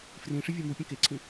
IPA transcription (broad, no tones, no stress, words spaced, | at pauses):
frĩʂɪvʲe mupʲə̃ keǀʰĩ